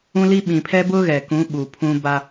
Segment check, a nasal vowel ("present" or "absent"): present